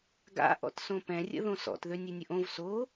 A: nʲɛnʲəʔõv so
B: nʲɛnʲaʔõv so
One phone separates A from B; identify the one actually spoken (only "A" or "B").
A